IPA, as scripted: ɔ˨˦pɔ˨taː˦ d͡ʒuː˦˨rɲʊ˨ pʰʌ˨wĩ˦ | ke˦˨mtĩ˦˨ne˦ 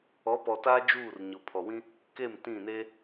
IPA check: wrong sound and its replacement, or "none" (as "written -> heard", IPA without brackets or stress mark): ʌ˨ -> ɔ˨